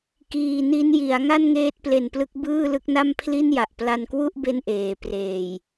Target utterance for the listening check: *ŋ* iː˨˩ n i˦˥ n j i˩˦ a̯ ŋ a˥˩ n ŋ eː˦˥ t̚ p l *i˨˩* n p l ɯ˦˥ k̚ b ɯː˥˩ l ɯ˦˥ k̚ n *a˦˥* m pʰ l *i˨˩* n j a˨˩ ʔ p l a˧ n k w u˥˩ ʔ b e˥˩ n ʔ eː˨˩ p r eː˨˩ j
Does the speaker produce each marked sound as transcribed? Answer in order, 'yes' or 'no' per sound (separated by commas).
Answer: no, no, no, no